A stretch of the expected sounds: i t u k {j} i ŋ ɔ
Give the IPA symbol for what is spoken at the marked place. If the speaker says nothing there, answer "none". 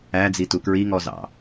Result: ɹ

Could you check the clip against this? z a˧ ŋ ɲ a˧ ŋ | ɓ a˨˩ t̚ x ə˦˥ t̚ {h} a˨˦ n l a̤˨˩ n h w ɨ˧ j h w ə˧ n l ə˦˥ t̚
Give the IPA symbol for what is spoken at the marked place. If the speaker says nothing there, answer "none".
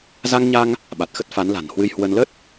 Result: f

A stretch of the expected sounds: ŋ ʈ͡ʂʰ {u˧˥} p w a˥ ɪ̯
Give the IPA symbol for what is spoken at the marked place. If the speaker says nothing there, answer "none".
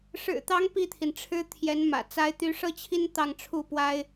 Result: u˥˩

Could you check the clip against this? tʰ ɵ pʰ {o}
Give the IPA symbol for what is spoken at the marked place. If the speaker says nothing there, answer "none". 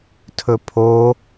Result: o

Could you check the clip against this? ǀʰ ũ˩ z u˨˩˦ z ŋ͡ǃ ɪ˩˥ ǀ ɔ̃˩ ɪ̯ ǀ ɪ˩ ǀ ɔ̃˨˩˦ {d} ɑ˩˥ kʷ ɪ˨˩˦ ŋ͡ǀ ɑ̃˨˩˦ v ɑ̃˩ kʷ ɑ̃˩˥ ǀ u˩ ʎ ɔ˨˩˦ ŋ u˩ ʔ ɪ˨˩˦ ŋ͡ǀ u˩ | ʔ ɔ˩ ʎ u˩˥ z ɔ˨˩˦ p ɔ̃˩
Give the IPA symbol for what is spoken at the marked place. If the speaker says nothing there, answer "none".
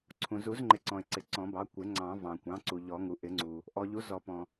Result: b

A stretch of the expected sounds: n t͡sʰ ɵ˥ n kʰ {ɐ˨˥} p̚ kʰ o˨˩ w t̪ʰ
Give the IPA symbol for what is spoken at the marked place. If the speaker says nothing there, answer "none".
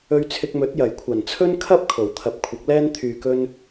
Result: ɐ˥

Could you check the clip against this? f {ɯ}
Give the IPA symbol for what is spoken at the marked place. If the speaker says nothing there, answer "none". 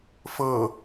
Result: ɤ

